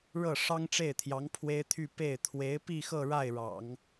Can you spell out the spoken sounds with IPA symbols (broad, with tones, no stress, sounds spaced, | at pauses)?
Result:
ɻ ɤ˥˩ ʂ ɑ˥ ŋ ʈ͡ʂ e˥˩ ɪ̯ t̪ʰ j ɑ˧˥ ŋ pʰ w e˥ ɪ̯ t̪ʰ y˥˧ p e˥˩ ɪ̯ t̪ʰ w e˧˥ ɪ̯ p i˥˧ x ɤ˥˧ ɻ a˥˩ ɪ̯ ɻ ɑ̰˨˩˦ ŋ